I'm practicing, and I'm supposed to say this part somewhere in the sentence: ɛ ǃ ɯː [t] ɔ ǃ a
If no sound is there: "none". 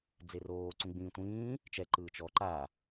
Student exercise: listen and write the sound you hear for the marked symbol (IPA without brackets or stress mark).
t͡ʃ